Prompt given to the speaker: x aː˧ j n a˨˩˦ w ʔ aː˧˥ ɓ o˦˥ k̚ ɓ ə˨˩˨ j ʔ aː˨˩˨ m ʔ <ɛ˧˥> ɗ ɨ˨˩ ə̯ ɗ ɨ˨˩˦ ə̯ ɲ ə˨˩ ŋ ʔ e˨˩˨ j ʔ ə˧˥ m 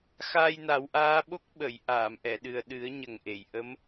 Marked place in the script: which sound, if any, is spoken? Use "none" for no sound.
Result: ɛ˨˩˨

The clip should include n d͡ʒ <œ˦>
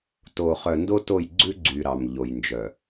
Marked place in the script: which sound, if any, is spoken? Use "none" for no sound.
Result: œ˨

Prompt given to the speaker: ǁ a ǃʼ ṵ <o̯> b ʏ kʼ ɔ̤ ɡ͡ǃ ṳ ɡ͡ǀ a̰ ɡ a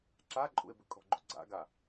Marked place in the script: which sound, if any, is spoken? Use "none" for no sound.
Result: e̯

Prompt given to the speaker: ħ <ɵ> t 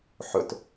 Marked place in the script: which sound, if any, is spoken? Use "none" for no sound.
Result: ɵ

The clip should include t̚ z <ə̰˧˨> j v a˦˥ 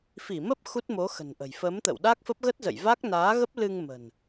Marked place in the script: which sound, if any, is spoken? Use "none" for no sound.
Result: ə̰˧˨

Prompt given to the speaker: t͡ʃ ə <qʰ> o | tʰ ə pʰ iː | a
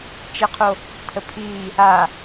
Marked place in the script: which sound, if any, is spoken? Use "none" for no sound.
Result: qʰ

